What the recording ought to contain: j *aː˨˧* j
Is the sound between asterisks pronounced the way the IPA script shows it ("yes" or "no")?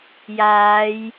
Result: yes